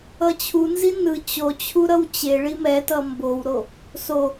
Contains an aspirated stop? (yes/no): yes